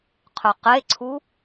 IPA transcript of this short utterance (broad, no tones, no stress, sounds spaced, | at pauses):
qʰ ɵ q e ǀʰ u